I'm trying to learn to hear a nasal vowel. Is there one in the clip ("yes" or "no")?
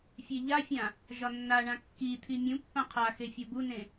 yes